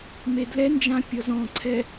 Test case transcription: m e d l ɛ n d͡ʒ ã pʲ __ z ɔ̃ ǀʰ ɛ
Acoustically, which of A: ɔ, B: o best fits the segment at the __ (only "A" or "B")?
A